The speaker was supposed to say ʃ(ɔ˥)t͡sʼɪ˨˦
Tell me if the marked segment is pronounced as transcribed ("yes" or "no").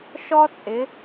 yes